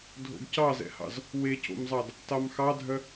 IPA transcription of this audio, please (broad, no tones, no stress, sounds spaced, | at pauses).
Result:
dʱ o̰ ɡ c ɑ z ɛ̰ h ɑ̰ z | w e c o̰ m zˤ ɑ d | t ɑ m x ɑ dʱ œ